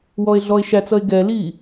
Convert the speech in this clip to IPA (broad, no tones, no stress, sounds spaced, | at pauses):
w ɔ e̯ ɮ ɔ e̯ ʃ æ t͡s ʌ e̯ ɡ ɛ l i